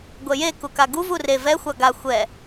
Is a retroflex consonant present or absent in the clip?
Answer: absent